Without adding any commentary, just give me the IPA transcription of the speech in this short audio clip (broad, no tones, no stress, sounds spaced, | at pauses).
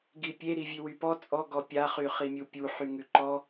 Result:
ɡ i pʲ e ɾ i vʲ ʉ w y p ɔ t͡sʼ ɔ ɡ ɔ pʲ a χ y χ i mʲ u pʲ u ħ y ŋ ʉ ǃ ɔ